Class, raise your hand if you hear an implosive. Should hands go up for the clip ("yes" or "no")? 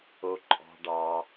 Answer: no